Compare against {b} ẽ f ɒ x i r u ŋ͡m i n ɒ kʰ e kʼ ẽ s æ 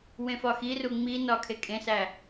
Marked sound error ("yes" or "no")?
yes